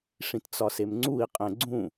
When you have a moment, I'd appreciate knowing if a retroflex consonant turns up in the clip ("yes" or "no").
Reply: yes